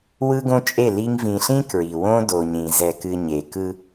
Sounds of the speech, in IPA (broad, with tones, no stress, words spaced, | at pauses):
wɯ˦ɡõ˦t͡ʃʼe˦˨li˦ŋ vĩ˨ɬĩ˦ kɹi˨wõ˦ do˨ɲĩ˨ zɛ˨kɨ˨ ɲe˨ kɯ˦